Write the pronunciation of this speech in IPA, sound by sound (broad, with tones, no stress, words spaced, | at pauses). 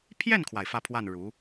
pʰjɛ˥˩nkʰwa˩ɪ̯ fä˥˧pʰwa˥˩n ɻu˧˥